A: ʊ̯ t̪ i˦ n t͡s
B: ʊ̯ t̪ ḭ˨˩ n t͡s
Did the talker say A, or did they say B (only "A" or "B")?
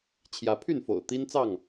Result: A